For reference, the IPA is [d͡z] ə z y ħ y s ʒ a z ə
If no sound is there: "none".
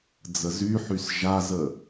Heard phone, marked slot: d͡z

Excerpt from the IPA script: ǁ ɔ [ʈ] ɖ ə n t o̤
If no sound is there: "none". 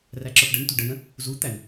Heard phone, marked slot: ʈ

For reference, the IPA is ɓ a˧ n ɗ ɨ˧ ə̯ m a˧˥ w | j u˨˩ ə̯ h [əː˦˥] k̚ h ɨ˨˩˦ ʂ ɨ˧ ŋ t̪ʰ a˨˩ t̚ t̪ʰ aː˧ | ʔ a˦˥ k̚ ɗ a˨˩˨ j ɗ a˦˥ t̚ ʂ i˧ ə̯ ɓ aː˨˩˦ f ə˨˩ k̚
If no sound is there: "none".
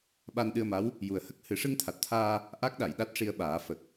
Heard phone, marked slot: ə˦˥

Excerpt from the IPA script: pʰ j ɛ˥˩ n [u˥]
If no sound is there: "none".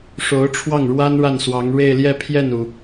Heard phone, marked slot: u˩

